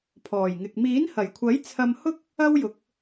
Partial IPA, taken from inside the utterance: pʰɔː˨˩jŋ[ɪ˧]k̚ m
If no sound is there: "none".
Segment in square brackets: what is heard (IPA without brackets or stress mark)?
ɪ˨